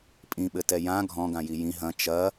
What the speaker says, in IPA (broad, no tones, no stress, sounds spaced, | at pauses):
pʼ ĩ ɓ ɘ t ɛ j ã ɡʱ ɔ̃ ɡ ã j i j ĩ ɦ ɐ̃ t͡ʃ ɐ